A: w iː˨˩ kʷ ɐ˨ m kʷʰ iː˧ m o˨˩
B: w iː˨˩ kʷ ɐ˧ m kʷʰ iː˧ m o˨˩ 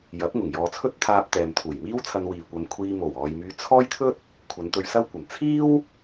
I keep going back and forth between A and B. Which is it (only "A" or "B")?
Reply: A